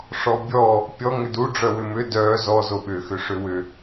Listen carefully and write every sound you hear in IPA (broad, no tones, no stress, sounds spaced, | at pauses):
ʂ ɔ bʲ ɔ | pʲ ɔ ŋ ʏ d u ɖ͡ʐ œ w ʏ m ʏ d œ z ɔ z o ɓ ʏ x ʏ ʂ ʏ w ʏ